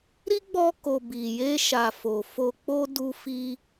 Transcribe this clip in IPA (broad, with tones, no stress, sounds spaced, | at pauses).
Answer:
ɾ i˦ ɡ͡b ɔ˧ k o˨ b i˨ j e˧ ʃ a˨ f o˨ f o˧ k͡p o˦ d u˧ f i˧